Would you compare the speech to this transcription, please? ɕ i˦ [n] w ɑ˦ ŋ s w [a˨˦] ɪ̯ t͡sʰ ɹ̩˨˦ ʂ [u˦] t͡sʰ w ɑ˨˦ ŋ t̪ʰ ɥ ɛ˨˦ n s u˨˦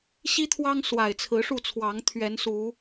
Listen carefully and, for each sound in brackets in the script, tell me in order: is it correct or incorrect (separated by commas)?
incorrect, incorrect, incorrect